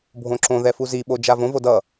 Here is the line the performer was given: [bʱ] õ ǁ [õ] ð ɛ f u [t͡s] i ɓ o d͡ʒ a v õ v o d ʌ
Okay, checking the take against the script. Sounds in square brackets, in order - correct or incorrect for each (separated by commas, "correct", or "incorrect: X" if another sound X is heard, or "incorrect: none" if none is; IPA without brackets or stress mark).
correct, correct, incorrect: z